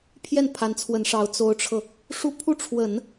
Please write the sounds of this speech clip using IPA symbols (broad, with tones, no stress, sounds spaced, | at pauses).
pʰ j ɛ˥˩ n pʰ a˧˥ n t͡sʰ w ə˧˥ n ʂ ɑ˧˥ ʊ̯ t͡s o˧˥ ʊ̯ ʈ͡ʂʰ ɤ˧ | ʂ u˥˧ pʰ u˥˩ ʈ͡ʂʰ w ə˨˩˦ n